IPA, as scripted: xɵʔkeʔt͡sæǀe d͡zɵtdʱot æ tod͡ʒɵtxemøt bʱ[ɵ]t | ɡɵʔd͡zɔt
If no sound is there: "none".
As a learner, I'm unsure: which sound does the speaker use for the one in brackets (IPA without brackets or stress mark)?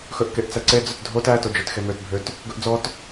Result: ø